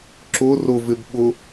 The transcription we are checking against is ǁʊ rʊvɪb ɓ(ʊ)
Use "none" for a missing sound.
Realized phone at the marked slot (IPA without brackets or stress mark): ʊ